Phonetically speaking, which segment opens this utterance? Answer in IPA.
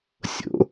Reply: sʲ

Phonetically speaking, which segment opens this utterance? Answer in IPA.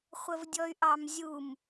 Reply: χʷ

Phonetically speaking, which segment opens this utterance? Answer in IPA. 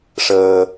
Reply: ʂ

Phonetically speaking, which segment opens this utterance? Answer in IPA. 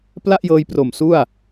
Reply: p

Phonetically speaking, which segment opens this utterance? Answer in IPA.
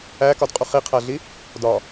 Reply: æ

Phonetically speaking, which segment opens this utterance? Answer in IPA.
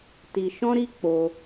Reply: t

